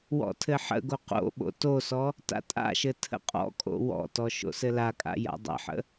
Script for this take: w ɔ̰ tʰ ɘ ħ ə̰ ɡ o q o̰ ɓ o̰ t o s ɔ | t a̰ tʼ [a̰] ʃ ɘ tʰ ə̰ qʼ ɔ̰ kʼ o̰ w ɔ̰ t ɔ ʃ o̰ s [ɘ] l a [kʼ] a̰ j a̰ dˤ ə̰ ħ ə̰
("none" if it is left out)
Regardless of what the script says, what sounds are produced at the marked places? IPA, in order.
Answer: a̰, ɘ, kʼ

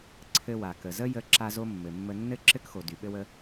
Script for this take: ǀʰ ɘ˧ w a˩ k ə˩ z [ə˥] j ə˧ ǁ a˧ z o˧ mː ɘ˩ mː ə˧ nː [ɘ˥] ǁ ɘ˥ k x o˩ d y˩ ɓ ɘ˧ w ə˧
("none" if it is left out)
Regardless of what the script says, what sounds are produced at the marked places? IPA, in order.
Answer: ə˥, ɘ˥

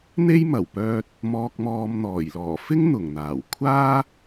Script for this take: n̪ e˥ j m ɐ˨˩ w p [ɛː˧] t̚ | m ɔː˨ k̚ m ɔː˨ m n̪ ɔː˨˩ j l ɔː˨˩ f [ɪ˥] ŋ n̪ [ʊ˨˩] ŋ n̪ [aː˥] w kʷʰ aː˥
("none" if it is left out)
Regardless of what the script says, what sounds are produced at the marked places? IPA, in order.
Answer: œː˧, ɪ˥, ʊ˨˩, aː˨˩

